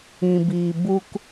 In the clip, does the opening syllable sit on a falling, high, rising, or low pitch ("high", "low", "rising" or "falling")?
low